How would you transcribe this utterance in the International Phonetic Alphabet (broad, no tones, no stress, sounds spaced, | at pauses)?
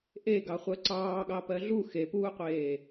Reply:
ʔ e ɡ ɑ χʷ ɜ ǀ ɑː ɠ ɑ p ɜ ɮ u x e p uː qʷ eː